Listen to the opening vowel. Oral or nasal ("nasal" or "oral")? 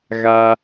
oral